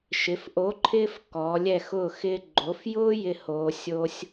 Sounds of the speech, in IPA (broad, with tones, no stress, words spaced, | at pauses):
ʃɪ˩˧fʔo˨˥ǃʰɪː˦f kɔː˩˧lʲɛ˦˨xʊː˦˨ xɪː˦ ɡ͡ǃo˩˧fjʊː˦ jɪ˦hoː˩˧ sʲo˦sʲ